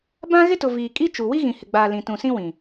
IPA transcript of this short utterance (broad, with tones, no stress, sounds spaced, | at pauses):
b ã˦ ɣ ɪ˦ t ʊ˨ v iː˨ kʼ i˦ t͡ʃ u˨ w i˦ ɣ ĩ˨ h ɪ˨ ɡ͡b aː˨ l ĩ˨ t ũ˨ s ĩ˦ w ĩ˨